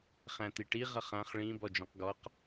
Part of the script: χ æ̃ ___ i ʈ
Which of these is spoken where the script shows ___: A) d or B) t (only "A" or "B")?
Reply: B